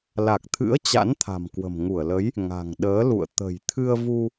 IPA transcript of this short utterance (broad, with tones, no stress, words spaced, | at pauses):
la˨˩k̚t̪ʰɨ̰˧˥ə̯ t͡ɕa̰˧˥nt̪ʰa̤˨˩mkwə̤˨˩m ŋu˧˩ə̯lə˨˦j | ŋa̤˨˩ŋɗəː˨˦lṵ˧˨ə̯ t̪ə̤˨˩jt̪ʰɨ˧ə̯vu˧